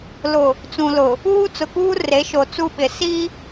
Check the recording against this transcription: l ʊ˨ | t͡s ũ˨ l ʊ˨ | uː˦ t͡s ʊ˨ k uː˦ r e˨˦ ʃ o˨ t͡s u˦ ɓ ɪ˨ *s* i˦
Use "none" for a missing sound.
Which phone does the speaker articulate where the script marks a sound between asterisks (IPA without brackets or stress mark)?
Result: s